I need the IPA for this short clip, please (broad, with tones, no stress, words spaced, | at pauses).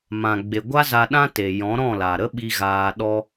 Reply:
mã˨ɡ͡be˨ ɡʷa˦za˧ɗã˦te˨ jɔ̃˨˦ɾɔ̃˦˨la˨ ɾə˦ɓi˧ ɣaː˧ɗɔ˦